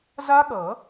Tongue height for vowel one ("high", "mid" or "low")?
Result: low